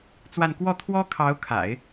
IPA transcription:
t͡s w a˥˧ n k w ɔ˥˩ t̪ʰ w ɔ˥ kʰ ɑ˧˥ ʊ̯ kʰ a̰˨˩˦ ɪ̯

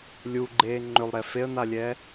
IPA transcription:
lʲ u ɡ͡ǃ eː ŋ͡ǃ ʏ lˠ ɾ ɛ f e ə̯ n a lʲ ɛː

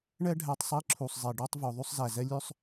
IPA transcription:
ɳ ɛ˥ ɖʱ æ˧ tˤ sˤ i˧˥ ǁʰ u˩ sˤ zˤ e˩ ɖ ɔ˥ tˤ v ɵ˩˧ ðˤ y˥ sˤ z æ˩ z ɛ˥ lʲ ø˥ sˤ

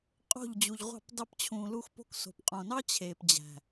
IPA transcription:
qʼ o̤˦˨ ʎ d͡ʑ u˨ ʎ ʁʷ ɑ̤˦˨ p d ɑ˧ p t͡ɕʰ ũː˨ l u˧ x p o̤˧ k s o̤˨ p qʼ õ˨ n ɑ˦ t͡ɕʰ eː˨ p d͡ʑ æ̤˨

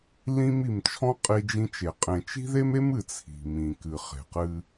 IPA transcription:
l ĩ˦ m i˨ m t͡ʃʰ ɔ̃˦ qʼ i˦ d͡ʒ ĩ˦ t͡ʃ e˨ qʼ ẽ˨ t͡ʃ i̤˦ ð e˦ m e˦ m ɨ˨ t͡sʰ i̤˨ m ĩ˨ k ɨ˨ χ e̤˨ q ɨ˦

